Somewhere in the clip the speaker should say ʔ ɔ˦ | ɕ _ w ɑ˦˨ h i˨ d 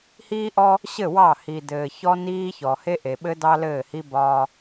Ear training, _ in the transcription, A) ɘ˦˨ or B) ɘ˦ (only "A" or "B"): A